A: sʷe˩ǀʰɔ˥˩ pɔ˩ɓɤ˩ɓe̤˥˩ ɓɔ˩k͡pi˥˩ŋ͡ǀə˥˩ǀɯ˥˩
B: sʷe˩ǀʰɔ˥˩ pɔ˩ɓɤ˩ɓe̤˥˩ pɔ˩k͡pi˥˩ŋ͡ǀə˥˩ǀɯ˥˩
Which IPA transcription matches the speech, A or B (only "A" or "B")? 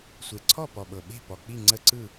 B